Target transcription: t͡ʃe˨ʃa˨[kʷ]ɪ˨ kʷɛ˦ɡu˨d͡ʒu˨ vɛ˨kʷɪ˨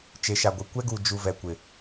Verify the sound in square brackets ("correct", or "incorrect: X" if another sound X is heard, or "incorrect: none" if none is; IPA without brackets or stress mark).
incorrect: ɡʷ